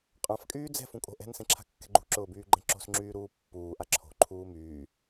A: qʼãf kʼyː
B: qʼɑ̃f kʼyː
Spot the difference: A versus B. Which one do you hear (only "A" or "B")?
A